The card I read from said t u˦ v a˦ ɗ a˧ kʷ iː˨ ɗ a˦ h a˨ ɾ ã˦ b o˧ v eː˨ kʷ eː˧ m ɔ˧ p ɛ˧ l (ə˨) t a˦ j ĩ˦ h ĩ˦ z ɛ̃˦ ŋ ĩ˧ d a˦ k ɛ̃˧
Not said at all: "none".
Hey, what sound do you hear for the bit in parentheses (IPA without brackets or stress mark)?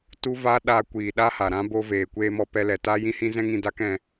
ɛ˨